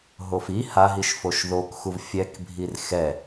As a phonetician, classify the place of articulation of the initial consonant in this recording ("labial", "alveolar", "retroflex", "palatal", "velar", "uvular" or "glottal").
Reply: glottal